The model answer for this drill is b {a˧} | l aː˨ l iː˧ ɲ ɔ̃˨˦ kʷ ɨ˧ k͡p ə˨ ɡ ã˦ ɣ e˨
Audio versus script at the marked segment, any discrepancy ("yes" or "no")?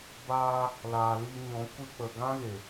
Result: yes